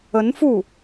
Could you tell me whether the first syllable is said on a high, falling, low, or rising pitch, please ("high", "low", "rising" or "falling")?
rising